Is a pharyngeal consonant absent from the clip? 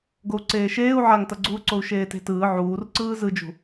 no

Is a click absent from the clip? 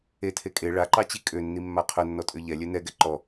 no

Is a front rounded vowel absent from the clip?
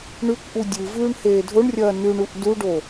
yes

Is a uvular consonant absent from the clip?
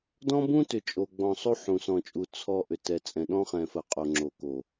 no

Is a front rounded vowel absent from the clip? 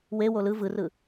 yes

